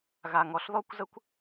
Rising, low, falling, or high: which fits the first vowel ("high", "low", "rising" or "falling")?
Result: low